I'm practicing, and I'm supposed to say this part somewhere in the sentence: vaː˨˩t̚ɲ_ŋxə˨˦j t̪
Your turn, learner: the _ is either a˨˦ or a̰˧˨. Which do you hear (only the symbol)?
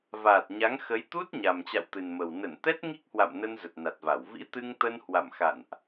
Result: a˨˦